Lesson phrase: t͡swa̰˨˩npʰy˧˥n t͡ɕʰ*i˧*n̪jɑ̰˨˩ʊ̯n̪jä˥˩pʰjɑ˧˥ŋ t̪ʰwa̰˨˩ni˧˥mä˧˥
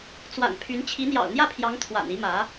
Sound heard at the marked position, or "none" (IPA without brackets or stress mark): i˧˥